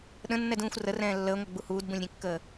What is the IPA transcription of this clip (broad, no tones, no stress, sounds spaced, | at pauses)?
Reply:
ɗ ə̃ nː ɛ d ũː xʷ r ə r ɛ̃ː lː əː ŋʷ ɛ ɡ͡b u h uː d b ũ lʲ ɾʲ ɛ̃ kː əː